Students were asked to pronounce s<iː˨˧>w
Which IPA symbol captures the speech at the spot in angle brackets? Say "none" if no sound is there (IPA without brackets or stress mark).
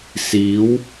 iː˨˥